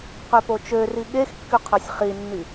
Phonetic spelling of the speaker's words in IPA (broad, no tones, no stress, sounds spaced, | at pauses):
q ø p o t͡ʃ ø r i ɠ e x kː y qʰ œ sʲ χ i nː i